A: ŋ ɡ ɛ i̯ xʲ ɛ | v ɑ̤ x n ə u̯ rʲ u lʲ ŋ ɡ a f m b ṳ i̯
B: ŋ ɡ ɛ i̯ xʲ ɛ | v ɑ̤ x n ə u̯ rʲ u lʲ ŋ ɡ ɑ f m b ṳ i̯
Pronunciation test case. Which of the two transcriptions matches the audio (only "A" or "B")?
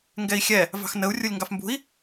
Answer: B